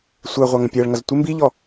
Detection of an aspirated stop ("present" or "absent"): absent